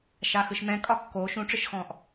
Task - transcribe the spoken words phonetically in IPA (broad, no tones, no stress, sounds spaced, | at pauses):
ʃ a x ɯ ʃ m ɛ̃ kʼ ɒ kː oː ʃ ũ ʈ͡ʂ ɯ ʃ x ɔ̃ː ʔ